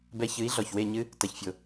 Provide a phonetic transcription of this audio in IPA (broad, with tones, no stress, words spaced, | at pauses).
bɛ˧çɨ˨˦i̯ ɮɔ˨çwe˦˨ɲɨ˦ | tɐ˧çfʲo˧